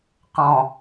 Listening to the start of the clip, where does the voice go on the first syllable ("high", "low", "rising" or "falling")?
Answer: low